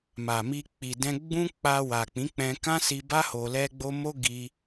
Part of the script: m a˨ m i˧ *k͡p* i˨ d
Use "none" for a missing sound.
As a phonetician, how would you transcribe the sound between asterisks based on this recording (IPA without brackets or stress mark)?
k͡p